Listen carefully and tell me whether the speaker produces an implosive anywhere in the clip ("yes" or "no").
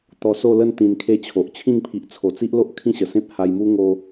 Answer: no